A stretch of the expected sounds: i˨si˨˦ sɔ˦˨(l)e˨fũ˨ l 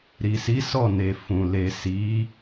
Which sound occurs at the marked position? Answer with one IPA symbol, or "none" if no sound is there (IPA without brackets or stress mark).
n